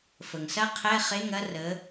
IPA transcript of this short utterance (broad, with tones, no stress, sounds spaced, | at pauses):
f ə˩ ŋ s ɐ˦˥ qʰ ɛ˧˥˧ χ e˧˥˧ ŋ ɐ˦˥ r ə˨˥